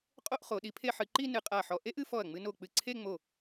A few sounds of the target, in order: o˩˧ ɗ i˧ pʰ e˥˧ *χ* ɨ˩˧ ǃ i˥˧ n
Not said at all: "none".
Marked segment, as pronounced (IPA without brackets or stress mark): ħ